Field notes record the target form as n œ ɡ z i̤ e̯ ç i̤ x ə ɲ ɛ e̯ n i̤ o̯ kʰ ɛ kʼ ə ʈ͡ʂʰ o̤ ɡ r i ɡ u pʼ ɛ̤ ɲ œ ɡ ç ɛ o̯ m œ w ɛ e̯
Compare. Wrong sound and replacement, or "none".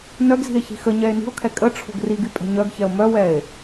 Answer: u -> y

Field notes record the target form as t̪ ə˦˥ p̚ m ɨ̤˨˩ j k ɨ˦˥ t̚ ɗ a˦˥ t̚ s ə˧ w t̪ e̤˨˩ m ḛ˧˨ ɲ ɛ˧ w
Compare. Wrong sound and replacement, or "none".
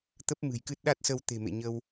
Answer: ɛ˧ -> ə˧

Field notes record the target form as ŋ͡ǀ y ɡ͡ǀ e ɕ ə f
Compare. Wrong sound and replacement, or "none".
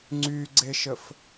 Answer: ɕ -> ʃ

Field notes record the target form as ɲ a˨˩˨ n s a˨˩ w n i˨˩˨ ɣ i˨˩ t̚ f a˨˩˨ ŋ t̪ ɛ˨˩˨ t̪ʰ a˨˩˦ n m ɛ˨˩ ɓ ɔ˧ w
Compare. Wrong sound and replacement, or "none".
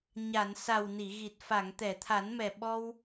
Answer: none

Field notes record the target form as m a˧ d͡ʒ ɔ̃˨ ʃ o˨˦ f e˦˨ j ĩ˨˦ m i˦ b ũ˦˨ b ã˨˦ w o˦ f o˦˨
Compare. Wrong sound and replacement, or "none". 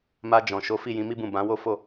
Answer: e˦˨ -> i˦˨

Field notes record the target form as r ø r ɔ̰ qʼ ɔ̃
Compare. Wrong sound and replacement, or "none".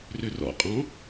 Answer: none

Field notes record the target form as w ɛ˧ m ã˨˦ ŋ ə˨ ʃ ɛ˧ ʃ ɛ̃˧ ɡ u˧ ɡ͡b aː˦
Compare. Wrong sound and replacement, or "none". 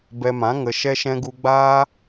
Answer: w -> b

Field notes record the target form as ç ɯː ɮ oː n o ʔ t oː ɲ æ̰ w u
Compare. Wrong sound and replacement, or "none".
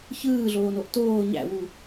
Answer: none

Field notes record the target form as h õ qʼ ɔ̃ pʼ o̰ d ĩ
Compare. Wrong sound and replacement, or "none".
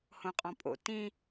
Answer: d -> t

